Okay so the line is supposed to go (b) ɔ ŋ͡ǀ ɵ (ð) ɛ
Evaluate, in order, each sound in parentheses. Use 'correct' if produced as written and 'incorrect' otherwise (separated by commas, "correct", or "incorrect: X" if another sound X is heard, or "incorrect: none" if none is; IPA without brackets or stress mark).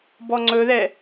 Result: correct, correct